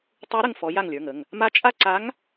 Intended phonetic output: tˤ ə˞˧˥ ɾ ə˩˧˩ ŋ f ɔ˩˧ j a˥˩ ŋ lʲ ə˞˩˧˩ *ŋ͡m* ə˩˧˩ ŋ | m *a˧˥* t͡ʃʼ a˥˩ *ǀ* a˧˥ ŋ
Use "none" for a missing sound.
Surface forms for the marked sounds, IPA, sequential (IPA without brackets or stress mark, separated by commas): ŋ, a˧˥, ǀ